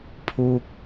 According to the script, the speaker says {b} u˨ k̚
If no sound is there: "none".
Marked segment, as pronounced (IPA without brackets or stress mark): pʰ